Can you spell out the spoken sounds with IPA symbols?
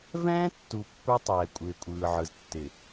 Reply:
vɛ̃ː˦tːu˨ pːə˞˦tˤɛː˨kʷʼɪː˨kʷʼɯː˨ ʕɯ˨ztːɪ˨

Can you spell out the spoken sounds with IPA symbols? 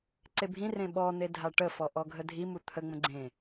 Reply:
ǀebʱĩrẽ ɓɔn̪e dʱaʈəfɔ ʔɔɡʱədʱimu t̪ʰəŋ͡mə̃ ɡ͡ǀẽ

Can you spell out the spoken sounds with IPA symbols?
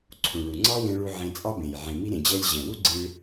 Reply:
ǀʰũ˨ɭu˨ ŋ͡ǀɑ˦wẽ˧ɭu˧ ʕẽ˧t͡sʼɑ˦bẽ˨j ʕẽ˨mi˧ɾẽ˨d͡ʑɛ˧lʲ ʑɛ̃˨wu˦ɡ͡ǀĩ˧ɭ

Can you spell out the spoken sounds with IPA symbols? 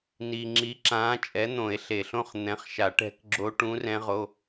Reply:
ni˨ŋ͡ǁi˨˥ ǁãː˨˥t͡ʃʼɛ˨˥ n̪õ˨˩˦e̯ɬe˨ɬõ˥˧χ n̪ɛ̃˨˥χʃa˨˩˦ ʈɛ̤˦˥kɡ͡ǁo˦˥ ʈũ˦˥rɛ̃˦˥ʁo˧˥˧

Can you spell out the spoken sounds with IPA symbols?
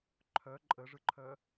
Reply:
ǃʰœ ǃʼəʐɯǃʰœ

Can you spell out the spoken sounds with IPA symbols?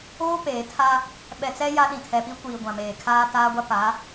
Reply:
oː˦peː˨tʰa˦ | ɓɛ˨t͡sɛ˦ ja˦ɗĩ˨ tʰɛ˨pi˦kʷiː˨ ɡʷã˨ meː˨kʰaː˦taː˦ɡʷa˦ pa˨˦

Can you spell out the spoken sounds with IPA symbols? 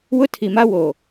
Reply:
wʊ˦tʰi˨ma˦wo˨

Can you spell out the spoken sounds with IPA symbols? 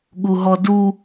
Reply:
ɠuɦɔdu

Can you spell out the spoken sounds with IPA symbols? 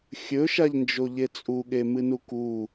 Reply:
xʲɵʃaʎnd͡ʒo ʎet͡sʼuɠe mɨnuku

